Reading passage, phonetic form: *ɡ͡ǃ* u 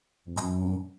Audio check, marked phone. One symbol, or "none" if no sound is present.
ɡ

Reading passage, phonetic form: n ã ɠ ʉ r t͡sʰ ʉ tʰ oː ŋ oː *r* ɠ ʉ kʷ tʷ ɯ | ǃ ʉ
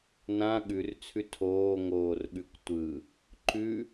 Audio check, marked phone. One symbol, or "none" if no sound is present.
r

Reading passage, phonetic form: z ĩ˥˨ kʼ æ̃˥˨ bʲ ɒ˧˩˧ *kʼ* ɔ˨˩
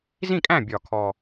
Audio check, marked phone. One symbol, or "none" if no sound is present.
kʰ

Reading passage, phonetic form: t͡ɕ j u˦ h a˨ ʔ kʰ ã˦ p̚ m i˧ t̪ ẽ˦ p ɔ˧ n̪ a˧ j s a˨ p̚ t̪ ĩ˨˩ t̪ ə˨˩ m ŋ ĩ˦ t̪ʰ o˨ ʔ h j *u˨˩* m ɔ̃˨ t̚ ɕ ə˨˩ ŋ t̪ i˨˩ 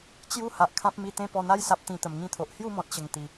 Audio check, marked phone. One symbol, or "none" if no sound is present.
u˥˧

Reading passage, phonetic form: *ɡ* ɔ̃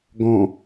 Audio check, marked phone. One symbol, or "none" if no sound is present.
ɡ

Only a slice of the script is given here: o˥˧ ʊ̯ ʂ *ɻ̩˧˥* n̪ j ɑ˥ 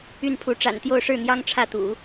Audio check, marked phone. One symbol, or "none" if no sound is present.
ɻ̩˥˩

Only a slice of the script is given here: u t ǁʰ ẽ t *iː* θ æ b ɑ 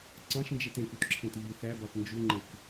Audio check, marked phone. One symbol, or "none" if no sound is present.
iː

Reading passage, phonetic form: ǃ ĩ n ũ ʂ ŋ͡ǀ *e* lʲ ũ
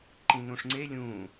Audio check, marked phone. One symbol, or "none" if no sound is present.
e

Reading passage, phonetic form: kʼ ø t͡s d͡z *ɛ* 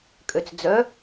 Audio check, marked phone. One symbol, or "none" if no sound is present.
œ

